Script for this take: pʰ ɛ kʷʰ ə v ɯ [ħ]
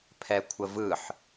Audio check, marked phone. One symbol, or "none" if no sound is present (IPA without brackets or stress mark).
ħ